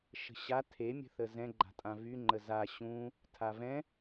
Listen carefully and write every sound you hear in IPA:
ʃ ə̤ ɕ a tʰ e mʲ ə̤ θ ə z ɛ̃ ɡ͡ǃ a̤ tʼ ã v y ŋ͡ǃ ə z a ɕ ũ | tʰ a v ɛ̃

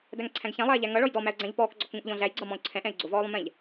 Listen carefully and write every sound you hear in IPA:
d æ ŋ ǀʰ æ̃ ɡ ç æ̃ lˠ ɛː ʎ æ ŋ ʌ ɭ ɔ j d ɔ m æ ʊ̯ ɡ͡ǀ æ̃ ʎ p ɔː k ɡ͡ǀ ɔ k ŋ ũ ʔ ʎ ɔ̃ ɮ æ j ɡ͡ǀ ʌ m ɔ̃ ʊ̯ ǀʰ ɛ̃ ʔ ɛ̃ ɪ̯ ɡ͡ǀ ʊ v ɔː lˠ ũ m ɛ̃ ʎ

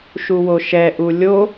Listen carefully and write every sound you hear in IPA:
ʃ u w o ʃ ɛ ʔ u lʲ o

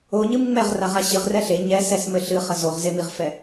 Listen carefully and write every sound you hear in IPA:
o ɲ ɨ m ŋ͡m ɛ ʁ r a ʁ a ɕ ɨ ʁ r ɛ ɬ e ɲ ɛ s ɛ s m ɘ ɬ ɨ χ ɐ z o ʁ z e m i ʁ f ɛ

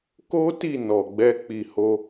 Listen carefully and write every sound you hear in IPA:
k o˦ t i˦˨ n ɔ˨ ɡ͡b ɛ˧ k͡p i˨ h o˧

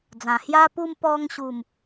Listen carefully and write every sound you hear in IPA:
d͡z ã˨˩ h j a˦ p u˦ m p ɔ˧ ŋ ɕ u˨˩ m

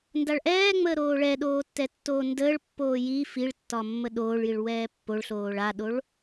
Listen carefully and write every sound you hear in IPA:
n d a ɭ ʔ ɛː ŋ͡m əː ɾ oː ɭ ɛ ɗ oː tː ɛ tː oː n d əː ɭ pː oː j i f i ɭ tː ɒ mː ə ɗ oː ɭ j i ɭ w ɛː pː o ɭ ɬ oː ɭ a ɗ o ɭ

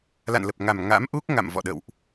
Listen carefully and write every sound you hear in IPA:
l a̰˧˨ n l ə˨˩ p̚ ŋ a˨˩ m ŋ a̰˧˥ m ʔ u˦˥ k̚ ŋ a̰˧˨ m v ɔ̰˧˨ ɗ ə̰˧˨ w ʔ

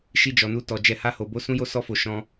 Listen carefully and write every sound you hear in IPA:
ʃ i˦ d͡ʒ ɔ˧ n u˦ t ɔ˧ d͡ʒ ɛ˧ h a˦ h o˧ b o˦ s ũ˦ j o˦ s ɔ˦ f o˧ ʃ ɔ̃˦

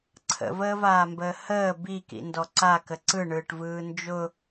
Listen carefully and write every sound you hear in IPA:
ǀʰ ə̰ v əː v aː m b əː h əː b i k ḭ n d ɔ ǀ a k ə ǀ ɯ ɳ ɯː ʈ v ɯː n d͡ʒ ʊ

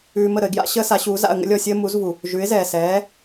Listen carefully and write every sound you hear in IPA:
ʉː˧ m ə˥˩ ɾ ə˧ ɪ̯ ɡ j a̰˥ ɕ əː˥ s a˩˥ ɕ uː˩˥ z a̰˥˩ ə̯ ŋ ə̰˥ lʲ ɔ˥˩ sʲ əː˥ m u˩˥ z v u˩ | ʒ ʉ˩˥ ɪ̯ z ɛː˩ s ɛː˩˥

